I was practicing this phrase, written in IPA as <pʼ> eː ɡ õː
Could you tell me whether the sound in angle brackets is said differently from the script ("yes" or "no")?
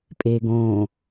no